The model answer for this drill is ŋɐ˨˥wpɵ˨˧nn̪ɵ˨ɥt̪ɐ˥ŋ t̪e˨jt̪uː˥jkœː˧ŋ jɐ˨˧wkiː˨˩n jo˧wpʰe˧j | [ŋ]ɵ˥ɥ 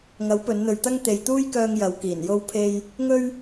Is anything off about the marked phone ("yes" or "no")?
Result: no